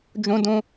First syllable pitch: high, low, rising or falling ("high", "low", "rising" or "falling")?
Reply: high